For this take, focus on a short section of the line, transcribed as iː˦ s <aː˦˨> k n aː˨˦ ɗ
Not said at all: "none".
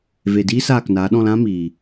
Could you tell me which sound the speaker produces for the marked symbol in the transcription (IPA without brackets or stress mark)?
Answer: aː˦˨